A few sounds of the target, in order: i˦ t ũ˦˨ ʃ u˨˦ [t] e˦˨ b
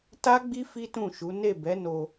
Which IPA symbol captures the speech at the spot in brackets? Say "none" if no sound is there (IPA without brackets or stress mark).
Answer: n